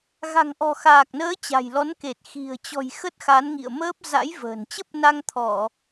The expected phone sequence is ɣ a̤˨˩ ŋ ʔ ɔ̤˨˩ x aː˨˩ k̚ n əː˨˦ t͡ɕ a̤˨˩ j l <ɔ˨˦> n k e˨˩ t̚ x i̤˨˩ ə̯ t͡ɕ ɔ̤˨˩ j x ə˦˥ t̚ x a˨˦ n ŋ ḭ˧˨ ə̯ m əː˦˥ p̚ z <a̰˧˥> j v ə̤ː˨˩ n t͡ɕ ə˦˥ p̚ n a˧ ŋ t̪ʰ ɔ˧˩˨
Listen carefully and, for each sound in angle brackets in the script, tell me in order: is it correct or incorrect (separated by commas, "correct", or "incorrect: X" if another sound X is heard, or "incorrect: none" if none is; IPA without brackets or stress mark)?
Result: correct, correct